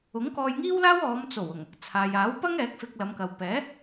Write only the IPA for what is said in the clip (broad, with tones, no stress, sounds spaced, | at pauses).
ʊ˨˥ ŋ k ɔː˧ j ŋ iː˥ w l aː˥ w ɔː˨˧ m t͡s o˨˩ w ʊ˨˩ ŋ | t͡sʰ aː˨ j aː˨˥ w p ɐ˥ ŋ ɛː˨˥ k̚ f ɪ˧ k̚ l ɐ˨˧ m k ɐ˨ w p ɛː˨˥